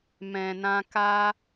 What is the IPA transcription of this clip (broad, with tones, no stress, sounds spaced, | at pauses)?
m ɛ̃˨ n ã˧ k a˧